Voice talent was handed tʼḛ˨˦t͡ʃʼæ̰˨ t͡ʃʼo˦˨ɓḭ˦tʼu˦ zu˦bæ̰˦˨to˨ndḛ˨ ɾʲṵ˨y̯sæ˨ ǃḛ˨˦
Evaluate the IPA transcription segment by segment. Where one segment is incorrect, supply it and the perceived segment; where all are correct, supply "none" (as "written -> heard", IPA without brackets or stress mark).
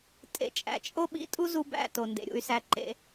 none